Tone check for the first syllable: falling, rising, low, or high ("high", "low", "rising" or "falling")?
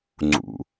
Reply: low